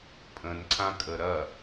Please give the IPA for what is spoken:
pʼə̃nǀʰãkʼə ɾɐ

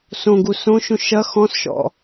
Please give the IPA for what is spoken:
sõɡu sõʃũ ʃɐ xɔ̃sʃɔ̰

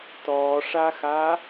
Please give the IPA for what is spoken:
tɔːʂaxa

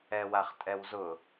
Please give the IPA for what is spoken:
ɛwaχtʼɛwzʊ

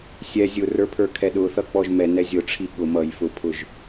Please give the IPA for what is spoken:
sʲɛ zʲʊrə˞pʰə˞kʰɛ ɗʊθʌ k͡pɔʒmɛ nɛzʲʊ ʈ͡ʂʰiɠʊ mʌj fʊpʰʊʒ

